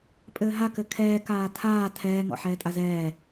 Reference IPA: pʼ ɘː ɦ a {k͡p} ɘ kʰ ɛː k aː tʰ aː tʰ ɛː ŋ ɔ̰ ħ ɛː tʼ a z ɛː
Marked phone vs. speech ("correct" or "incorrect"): incorrect